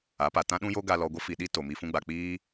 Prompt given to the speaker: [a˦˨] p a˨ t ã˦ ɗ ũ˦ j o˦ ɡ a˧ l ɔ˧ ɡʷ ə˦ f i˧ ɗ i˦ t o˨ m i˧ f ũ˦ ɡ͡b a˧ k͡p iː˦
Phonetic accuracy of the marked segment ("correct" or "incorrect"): incorrect